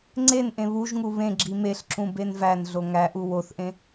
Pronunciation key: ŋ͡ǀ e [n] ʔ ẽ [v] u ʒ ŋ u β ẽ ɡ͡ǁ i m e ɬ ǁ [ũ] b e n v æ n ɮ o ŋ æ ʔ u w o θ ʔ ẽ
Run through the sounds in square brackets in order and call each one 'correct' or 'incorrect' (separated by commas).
correct, incorrect, correct